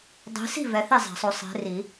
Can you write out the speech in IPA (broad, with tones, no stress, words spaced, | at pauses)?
dˤi̤˨˦si̤˥˨ vɛ˨˦θi˥˨zˤa̤˨˩˦sˤo˨˦ sˤe̤˨˦ri˨˩˦